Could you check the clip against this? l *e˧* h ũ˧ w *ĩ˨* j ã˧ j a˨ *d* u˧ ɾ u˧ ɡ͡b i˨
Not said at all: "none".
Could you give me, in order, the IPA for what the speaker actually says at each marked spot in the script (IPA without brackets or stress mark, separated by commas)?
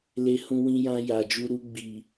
e˧, ĩ˧, d͡ʒ